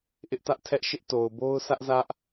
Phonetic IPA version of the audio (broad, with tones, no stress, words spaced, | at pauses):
ʔɪ˦ʔ tä˦ʔtʰɛ˦ʔ ʃɪ˦ʔto˨ʊ̯ bo˦ʊ̯sä˦ʔzä˦ʔ